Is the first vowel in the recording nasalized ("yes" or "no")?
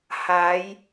no